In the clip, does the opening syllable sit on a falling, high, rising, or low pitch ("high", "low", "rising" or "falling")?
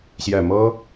low